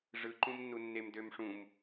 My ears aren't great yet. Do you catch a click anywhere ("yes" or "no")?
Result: yes